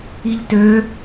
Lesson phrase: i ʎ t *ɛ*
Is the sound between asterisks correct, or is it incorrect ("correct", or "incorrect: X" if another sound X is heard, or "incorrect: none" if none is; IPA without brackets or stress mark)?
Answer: incorrect: ø